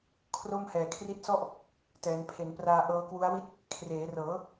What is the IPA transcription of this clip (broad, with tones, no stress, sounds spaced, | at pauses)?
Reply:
kʰ r o˥˩ m h ɛː˨˩ kʰ r i˦˥ t̚ s ɔ˥˩ ʔ | t ɛː˩˦ n pʰ e˩˦ n p r aː˧ ʔ ɤː˦˥ k w u˦˥ a̯ w i˥˩ t̚ | kʰ r eː˩˦ r ɤː˩˦